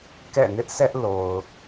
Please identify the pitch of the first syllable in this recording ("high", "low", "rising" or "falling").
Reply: falling